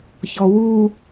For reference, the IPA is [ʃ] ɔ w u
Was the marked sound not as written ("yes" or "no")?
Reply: yes